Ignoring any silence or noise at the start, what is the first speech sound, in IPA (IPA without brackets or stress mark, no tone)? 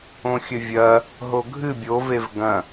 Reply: õ